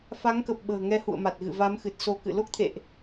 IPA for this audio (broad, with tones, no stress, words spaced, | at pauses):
fa˨˦ŋkə˨˩p̚ ɓə̤ː˨˩ŋɛ˧ hṵ˧˨ə̯ma˨˩t̚ɣɨ̰˧˨ va˨˦mxɨ˨˩t̚so˨˦kɨ̰˧˨ lo˦˥k̚t̪ʰḛ˧˨ʔ